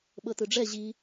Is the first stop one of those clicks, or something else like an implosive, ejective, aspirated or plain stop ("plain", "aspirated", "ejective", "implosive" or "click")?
implosive